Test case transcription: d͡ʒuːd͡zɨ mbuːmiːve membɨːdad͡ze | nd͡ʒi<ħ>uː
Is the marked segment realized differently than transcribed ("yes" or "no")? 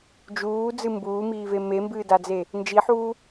no